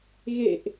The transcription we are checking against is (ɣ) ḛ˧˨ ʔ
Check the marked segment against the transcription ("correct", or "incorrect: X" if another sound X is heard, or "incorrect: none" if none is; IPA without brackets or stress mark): correct